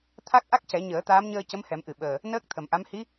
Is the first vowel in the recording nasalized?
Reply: no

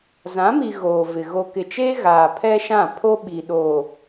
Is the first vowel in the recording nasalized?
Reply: yes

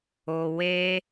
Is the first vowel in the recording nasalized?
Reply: no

